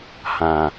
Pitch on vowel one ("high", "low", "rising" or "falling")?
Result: low